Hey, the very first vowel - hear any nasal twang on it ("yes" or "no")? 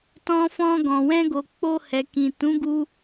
yes